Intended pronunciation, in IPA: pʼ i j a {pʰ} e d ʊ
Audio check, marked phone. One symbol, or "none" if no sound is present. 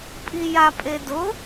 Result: pʼ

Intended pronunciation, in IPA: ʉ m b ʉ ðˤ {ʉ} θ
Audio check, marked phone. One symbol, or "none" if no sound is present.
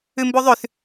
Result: ʉ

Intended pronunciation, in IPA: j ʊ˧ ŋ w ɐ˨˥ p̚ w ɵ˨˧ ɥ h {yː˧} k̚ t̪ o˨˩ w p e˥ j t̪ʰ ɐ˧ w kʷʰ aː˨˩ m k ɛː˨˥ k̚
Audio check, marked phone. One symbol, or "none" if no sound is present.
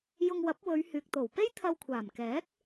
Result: yː˨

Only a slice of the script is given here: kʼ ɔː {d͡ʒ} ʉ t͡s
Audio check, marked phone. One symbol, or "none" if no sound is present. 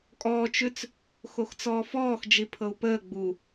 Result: t͡ʃ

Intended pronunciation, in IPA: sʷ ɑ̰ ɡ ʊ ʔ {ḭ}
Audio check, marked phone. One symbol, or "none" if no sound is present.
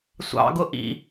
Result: ḭ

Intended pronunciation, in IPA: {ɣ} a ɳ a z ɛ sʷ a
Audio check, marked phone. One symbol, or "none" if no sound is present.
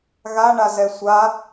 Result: ɣ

